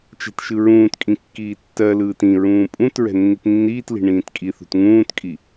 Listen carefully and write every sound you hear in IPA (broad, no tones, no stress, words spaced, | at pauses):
t͡ʃɛ̤tʃɯɹũːtkʼĩ kːiːtːɜlɯːt ĩɹũː pʼũt ɹɛ̤nːitnːiːtli̤ ɳĩːtkʼiθṳt ŋũːtkʼi